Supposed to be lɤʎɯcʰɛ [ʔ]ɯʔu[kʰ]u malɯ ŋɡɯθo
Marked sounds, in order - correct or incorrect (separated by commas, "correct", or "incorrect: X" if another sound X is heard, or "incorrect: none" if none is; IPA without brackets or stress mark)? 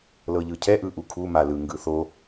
correct, correct